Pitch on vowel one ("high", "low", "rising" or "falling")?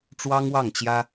high